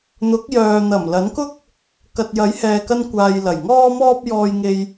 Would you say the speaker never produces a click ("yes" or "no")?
yes